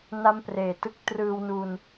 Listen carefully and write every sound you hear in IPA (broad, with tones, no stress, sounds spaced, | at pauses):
n a˥˩ m p r eː˨˩ t ɯ˥˩ k̚ t r ɯː˧ w n u˧ n